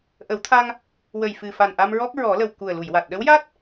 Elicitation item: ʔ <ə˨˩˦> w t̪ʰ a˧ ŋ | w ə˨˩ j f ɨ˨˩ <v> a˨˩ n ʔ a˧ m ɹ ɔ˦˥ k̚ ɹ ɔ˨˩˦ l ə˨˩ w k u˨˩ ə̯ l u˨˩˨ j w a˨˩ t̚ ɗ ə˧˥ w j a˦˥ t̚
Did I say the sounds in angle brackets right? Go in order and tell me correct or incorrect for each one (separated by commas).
correct, incorrect